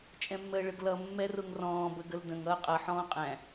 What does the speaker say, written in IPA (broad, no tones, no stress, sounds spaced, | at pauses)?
t͡ʃʼ ɛ̃ mː əː ɭ ə ɡ l ʌ mː ɛ r ʊ ŋ r ɔ̃ː b ə ɡ ə l d ə̃ ŋ ʌː qʼ ʌ ħ ɔ̃ː qʼ æ̃